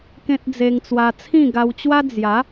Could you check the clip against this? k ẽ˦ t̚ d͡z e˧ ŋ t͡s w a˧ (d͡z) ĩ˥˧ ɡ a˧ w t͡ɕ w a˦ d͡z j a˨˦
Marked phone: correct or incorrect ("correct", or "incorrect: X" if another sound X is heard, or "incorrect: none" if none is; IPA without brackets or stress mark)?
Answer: incorrect: t͡sʰ